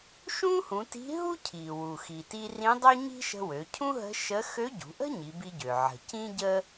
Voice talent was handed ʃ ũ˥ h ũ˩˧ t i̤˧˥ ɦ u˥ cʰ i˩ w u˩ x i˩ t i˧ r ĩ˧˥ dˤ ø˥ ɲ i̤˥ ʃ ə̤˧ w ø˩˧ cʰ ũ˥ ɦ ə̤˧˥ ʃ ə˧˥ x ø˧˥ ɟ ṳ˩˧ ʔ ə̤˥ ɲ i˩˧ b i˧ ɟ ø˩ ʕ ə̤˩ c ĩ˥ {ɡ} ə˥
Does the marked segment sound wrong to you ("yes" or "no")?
yes